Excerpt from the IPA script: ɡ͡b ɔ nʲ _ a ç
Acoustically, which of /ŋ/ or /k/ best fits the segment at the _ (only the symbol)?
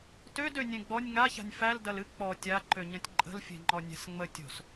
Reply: ŋ